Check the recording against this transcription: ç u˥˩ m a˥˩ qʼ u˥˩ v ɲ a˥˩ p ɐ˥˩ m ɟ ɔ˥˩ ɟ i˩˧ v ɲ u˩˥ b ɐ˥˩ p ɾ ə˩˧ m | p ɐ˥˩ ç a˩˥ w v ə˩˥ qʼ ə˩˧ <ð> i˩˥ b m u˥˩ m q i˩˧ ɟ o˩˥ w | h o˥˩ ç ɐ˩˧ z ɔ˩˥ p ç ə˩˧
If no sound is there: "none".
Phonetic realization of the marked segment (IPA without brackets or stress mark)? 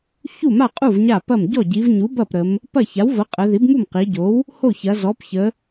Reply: ð